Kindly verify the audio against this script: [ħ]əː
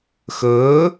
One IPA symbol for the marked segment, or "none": x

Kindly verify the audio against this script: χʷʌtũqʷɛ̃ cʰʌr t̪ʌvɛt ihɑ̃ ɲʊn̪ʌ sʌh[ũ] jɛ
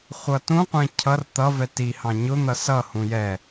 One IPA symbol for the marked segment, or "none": ũ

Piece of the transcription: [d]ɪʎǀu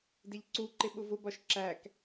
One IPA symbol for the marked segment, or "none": d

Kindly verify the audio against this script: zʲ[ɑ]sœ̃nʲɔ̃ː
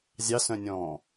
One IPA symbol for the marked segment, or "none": ɑ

